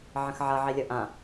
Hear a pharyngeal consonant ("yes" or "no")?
yes